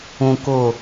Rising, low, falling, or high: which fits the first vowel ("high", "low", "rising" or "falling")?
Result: low